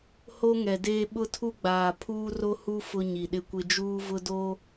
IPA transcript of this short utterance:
ho˦ŋɛ˨deː˦ ɓʊ˦tʰu˦ɡ͡baː˨ pʰuː˦ro˦hu˦ fʊ˦ɲi˨ɗɪ˦kʷɪ˦ d͡ʒuː˦vʊ˦ do˦

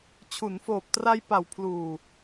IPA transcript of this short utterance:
t͡ɕʰu˩˦nfoː˨˩p̚tra˧j pa˨˩wpʰluː˨˩

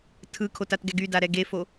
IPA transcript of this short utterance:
tʰɯkʰotatɡɛɡ ydaɾɛ ɡefo

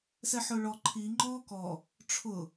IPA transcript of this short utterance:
sɛħʊːɭɔ ǃʰi ŋ͡ǃɔːkɔ | ʈ͡ʂʰʊ

